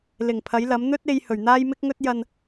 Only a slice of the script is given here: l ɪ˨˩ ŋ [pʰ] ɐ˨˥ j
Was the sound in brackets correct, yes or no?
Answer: yes